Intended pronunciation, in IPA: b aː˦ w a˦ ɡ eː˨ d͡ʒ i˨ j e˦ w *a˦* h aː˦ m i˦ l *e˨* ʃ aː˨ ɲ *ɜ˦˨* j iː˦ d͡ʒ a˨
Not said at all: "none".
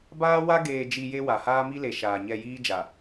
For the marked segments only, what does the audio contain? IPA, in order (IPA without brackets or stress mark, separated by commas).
a˨, e˨, ɛ˦˨